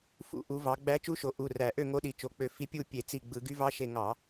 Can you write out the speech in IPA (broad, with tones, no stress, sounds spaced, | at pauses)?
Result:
f ṵ˧˩˧ ʔ u˩˧ v ɑ˩˧ ɡ͡b æ˧˥ t͡ʃ u˧˥ ʃ o˩˧ ʔ u˩˧˩ r æ˧˩˧ ʔ ø˥˨ ŋ o˧˥ ɗ i˩˧ t͡ʃ o˩˧˩ k͡p ø˧˩ f i˧˥ pʲ u˥˨ pʲ e˧˩˧ t͡s i˧˩ ɡ͡b ɯ˧˩˧ ɡ y˧˥ v ɑ˧˥ ʃ e˧˩ ŋ ɑ˧˩˧